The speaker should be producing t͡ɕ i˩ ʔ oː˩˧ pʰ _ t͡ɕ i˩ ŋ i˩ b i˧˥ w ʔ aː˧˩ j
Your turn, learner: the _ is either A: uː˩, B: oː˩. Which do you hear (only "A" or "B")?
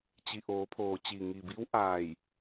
B